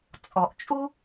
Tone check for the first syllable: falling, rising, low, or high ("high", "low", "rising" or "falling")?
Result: low